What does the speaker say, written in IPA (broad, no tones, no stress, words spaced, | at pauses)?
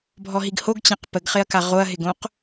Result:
bʱɔɦiɡhoɡ t͡ɕãqpəɡχɪɐ̯ka ʁoɐ̯ɦɪɡõq